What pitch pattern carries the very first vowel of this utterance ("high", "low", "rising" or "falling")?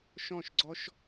falling